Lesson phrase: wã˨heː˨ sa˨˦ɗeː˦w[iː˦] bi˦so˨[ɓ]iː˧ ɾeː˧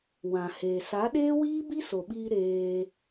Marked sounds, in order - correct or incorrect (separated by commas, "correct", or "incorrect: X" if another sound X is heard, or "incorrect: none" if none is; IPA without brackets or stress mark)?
correct, correct